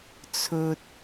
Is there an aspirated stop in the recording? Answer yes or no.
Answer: yes